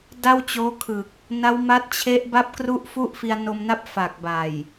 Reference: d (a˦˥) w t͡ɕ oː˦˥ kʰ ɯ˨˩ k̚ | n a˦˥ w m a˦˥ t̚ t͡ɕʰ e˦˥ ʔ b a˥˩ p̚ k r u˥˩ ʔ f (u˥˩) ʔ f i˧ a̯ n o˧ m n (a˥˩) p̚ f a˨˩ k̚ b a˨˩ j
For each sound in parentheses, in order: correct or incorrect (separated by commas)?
incorrect, correct, correct